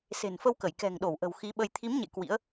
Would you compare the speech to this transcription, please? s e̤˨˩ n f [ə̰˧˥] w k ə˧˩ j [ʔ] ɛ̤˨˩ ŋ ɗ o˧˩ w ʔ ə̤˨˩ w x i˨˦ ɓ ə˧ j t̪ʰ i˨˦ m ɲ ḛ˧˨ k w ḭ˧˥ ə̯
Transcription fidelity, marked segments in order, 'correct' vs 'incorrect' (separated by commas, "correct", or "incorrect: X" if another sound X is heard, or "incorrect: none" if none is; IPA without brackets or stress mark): incorrect: ə˧, incorrect: k